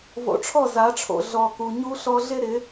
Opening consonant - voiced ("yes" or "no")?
yes